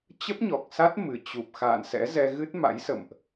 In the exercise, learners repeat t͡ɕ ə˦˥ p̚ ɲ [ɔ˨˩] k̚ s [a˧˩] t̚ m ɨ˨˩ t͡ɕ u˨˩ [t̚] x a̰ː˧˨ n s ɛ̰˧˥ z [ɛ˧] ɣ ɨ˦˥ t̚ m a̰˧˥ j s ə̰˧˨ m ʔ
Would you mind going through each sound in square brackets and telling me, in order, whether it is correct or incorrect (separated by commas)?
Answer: correct, incorrect, incorrect, correct